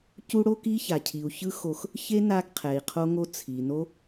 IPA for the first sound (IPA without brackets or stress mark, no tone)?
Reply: c